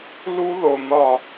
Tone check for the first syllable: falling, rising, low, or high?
high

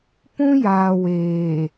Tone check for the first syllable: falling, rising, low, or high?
high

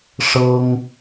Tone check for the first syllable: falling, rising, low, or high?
high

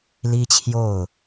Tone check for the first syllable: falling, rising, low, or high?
high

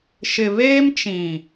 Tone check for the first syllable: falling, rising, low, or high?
low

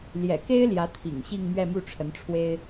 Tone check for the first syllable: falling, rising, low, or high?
low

